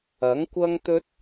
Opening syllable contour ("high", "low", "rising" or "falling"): rising